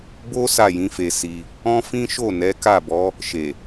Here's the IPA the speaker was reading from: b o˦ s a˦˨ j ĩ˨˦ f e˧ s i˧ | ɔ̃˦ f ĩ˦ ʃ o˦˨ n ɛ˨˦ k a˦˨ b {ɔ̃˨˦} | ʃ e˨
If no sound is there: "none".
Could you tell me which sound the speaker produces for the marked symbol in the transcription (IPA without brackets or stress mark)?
ɔ˨˦